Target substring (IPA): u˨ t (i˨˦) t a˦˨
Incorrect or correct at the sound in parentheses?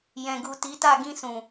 correct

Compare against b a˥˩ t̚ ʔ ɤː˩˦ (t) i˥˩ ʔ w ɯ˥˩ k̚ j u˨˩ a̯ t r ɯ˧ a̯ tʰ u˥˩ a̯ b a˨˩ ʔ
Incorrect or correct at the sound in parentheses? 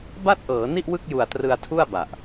incorrect: n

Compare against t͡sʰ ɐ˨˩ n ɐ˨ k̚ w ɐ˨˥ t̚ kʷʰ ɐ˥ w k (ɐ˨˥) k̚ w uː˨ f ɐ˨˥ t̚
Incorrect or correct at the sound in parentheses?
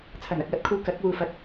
correct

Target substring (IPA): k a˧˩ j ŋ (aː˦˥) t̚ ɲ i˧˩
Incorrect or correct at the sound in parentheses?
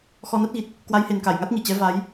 incorrect: a˦˥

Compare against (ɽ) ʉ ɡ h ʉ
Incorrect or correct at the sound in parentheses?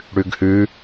correct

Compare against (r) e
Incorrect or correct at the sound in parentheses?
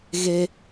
incorrect: ɣ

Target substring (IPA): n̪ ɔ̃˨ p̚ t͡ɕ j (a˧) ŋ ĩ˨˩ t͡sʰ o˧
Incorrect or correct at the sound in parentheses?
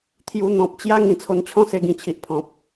incorrect: a˦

